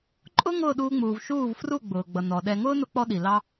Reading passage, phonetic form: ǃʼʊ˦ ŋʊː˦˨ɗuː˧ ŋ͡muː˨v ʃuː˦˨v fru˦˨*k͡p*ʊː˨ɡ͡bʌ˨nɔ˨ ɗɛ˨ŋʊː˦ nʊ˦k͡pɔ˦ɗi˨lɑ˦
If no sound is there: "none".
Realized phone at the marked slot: ɡ͡b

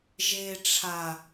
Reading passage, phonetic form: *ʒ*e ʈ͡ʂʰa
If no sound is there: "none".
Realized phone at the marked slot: ʒ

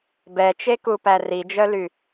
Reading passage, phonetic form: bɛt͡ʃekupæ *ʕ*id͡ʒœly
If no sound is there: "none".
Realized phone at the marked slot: r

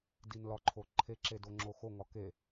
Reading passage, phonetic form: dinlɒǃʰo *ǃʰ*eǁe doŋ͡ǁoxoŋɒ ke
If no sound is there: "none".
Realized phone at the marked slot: ǃʰ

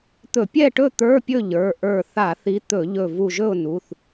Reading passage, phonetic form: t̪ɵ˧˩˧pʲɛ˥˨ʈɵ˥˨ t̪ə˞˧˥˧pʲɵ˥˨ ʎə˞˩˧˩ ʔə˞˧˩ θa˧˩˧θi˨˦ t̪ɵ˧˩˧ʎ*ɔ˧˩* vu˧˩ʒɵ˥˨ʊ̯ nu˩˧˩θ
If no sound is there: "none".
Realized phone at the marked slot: ɵ˧˩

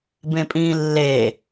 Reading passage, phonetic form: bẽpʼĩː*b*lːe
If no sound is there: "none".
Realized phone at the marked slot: none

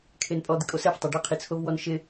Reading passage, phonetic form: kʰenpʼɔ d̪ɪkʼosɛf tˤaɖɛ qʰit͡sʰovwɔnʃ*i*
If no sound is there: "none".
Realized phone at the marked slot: ɪ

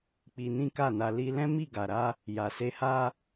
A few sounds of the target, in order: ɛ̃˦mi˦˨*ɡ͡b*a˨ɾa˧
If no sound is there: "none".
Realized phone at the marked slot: ɡ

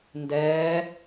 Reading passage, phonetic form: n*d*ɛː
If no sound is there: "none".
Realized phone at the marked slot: d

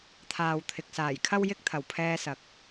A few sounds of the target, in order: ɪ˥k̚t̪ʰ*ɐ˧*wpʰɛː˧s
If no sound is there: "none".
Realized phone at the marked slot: ɐ˨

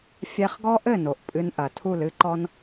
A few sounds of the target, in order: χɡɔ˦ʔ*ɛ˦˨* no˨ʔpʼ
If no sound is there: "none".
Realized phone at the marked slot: ɘ˦˨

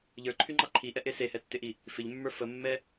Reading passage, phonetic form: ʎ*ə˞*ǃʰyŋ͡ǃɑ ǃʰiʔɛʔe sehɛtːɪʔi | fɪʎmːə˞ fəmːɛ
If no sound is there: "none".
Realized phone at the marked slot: ə˞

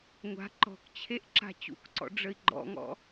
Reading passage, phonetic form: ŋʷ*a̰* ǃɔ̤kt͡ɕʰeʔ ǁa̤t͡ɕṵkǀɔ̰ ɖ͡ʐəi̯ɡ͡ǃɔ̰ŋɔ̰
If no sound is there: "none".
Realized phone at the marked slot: a̤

